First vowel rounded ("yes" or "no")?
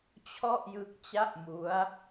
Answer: yes